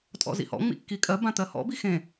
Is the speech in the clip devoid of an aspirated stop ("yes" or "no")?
yes